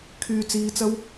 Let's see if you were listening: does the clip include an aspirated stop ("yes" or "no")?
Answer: yes